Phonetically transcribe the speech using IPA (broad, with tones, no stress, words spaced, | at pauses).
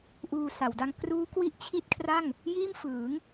ʔuː˧sa˩˦wda˦˥ŋ kruː˦˥kwi˥˩ʔ t͡ɕʰi˦˥t̚kʰra˥˩ŋ | jiː˥˩m fɯː˩˦ŋ